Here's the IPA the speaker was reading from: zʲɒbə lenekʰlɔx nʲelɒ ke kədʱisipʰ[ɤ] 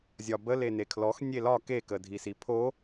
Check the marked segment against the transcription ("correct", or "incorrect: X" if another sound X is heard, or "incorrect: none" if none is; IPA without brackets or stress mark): incorrect: o